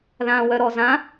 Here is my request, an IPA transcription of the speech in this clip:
ð ã w œ ɾ ɔ z ã

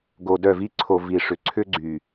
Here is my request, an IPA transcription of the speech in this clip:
ɡ o˨ d œ˦˨ v i˦ ǀʰ o˨ v i˨ ʂ ʏ˨ ǀʰ ʏ˦ ɡ͡ǀ y˨

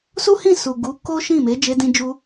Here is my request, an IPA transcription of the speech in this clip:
s u˦ h ĩ˦˨ s u˨ ɡ u˨˦ k o˦ ʃ ĩ˦˨ m e˨˦ d͡ʒ e˧ d ĩ˧ d͡ʒ u˧

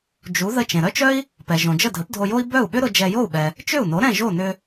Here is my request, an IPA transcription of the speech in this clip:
d͡ʒ u˩˥ ð ə˧ t͡ʃ ẽ˩ ɾ œ˥ t͡ʃ œ˥ i̯ | p ɛ˩ ʒ õ˩ d͡ʒ ə˥˩ dʱ ə˩˥ p dʱ o˧ j o˥ i̯ b œ˥˩ u̯ ɓ ʏ˥ ɾ ʊ˧ d͡ʒ ɛ˧ j o˥˩ u̯ ɓ ɛ˩ | t͡ʃ ʏ˥˩ u̯ n o˩˥ ɾ ɛ̃˥˩ ʒ o˥˩ n ʏ˧

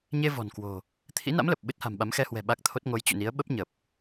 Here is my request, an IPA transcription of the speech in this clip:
ɲ e˧ v ɔ̤˨˩ n k w o̤˨˩ | t̪ʰ ḭ˧˥ n a̰˧˥ m l ə˨˩ p̚ ɓ ɨ˦˥ t̚ h a̤˨˩ m ɓ a˨˦ m x ɛ˧ h w ɛ̤˨˩ ɓ a˦˥ k̚ t̪ʰ o˦˥ t̚ ŋ o˨˦ j t͡ɕ ṵ˧˨ n i˨˦ ə̯ ɓ ə˦˥ p̚ ɲ ə˨˩ p̚

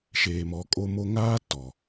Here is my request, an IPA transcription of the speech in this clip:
ʃ eː˨ m ɔ˨˦ kʼ o˦ m o˦ ŋ aː˦ t ɔ˨

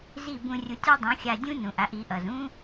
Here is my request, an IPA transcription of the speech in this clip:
z i˥˩ b ũ˧ rʲ u˩˥ tʲ ɒ˥ dˤ ũ˩˥ xʲ a˧ dʲ ũ˥ n ũ˩ ʔ a˧ ʔ i˩˥ ʔ ʌ˩ z ũ˥

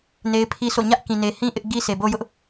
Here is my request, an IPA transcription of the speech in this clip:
n e˦ ɪ̯ pʰ i˦ sʰ o̰˦˨ ɲ ä˦ ʔ k ĩ˨ n e˨ h ĩ˦ ʔ ɪ˦ ʔ ɡ i˦ s e˨ b o˦ j ʊ˦ ʔ

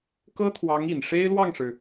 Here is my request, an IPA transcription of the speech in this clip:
k ɤ˥ t̪ʰ w ɑ˧˥ ŋ i˨˩ n ʂ e˥ ɪ̯ l w ɑ˥˩ ŋ ʂ ɻ̩˩

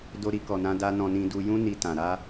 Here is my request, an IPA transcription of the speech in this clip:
d o˧ ɾ i˧ k ɔ˨ n ã˧ d a˦ n ɔ̃˧ n ĩ˧ d u˧ j ũ˦ n i˧ t ã˨ ɾ a˧

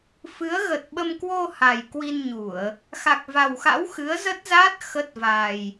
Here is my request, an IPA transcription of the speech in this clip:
f ɨ˨˦ ə̯ ɣ ə˨˩ t̚ ɓ ə˧ m k w o˧ h a˨˩ j k w i˧ n ɲ u˧˩˨ ə̯ | x a˨˩ k̚ v a˨˩ w x a̰˧˥ w x ɨ˨˦ ə̯ z ə˦˥ t̚ z a˦˥ t̚ x ə˦˥ t̚ v a˨˩ j

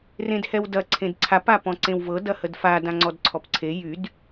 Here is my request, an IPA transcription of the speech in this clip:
r ẽ d h ɛ w d ɐ ǀʰ ẽ d ǀʰ a p a p ɔ̃ ǀ ẽ w v ɤ d ɐ h ə d f a d ã ŋ͡ǀ ɔ d ǀʰ ɔ p ǀʰ e j y d

